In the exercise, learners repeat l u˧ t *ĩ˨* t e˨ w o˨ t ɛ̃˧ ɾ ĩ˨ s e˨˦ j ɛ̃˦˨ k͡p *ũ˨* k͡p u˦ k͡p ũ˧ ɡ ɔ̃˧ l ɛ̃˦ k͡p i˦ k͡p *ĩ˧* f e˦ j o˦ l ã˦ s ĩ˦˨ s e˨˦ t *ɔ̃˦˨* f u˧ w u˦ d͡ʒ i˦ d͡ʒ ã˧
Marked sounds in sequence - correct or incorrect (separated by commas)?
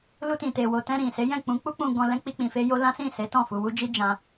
correct, incorrect, correct, correct